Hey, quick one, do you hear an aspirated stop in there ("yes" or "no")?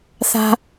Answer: no